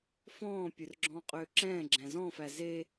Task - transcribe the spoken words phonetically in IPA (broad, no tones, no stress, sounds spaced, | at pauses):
f ɔ̃ː pʲ ɵ r ɡ͡ǁ ɔ̃ː qʼ øː ǁ ɛ̃ː ɡ͡ǁ æ̃ z ɔ̃ː f æ z e